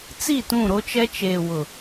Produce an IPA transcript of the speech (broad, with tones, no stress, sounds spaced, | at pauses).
t͡s i˦˨ t ũ˦˨ ɾ o˦ t͡ʃ ɛ˦ t͡ʃ eː˨ w ʊ˨